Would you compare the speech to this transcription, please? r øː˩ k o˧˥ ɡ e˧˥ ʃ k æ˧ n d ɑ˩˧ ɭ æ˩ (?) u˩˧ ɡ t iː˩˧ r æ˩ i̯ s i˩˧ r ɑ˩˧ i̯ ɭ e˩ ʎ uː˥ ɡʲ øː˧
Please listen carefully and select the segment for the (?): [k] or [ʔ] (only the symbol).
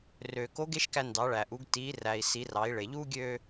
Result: ʔ